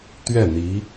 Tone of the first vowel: falling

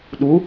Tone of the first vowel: rising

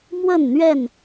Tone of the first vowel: falling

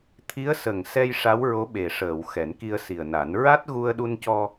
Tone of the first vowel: rising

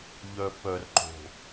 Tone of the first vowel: low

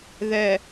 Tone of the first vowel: low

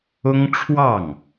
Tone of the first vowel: high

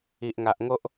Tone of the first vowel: low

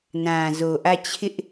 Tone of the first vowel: low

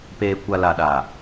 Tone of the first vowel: low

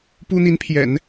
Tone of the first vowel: high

